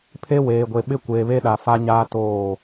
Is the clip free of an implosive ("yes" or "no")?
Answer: no